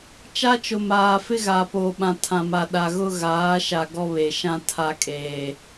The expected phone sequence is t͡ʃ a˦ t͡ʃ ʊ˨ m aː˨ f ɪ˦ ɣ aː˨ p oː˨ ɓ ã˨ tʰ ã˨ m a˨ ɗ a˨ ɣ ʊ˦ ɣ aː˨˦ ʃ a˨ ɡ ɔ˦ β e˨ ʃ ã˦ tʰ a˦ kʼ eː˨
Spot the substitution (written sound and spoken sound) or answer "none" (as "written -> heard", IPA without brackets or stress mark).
none